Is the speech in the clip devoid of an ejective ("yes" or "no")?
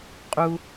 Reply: no